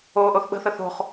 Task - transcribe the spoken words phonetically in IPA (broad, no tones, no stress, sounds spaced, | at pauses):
o ʔ o θ ɓ ə̤ θ ə θ o̤ χ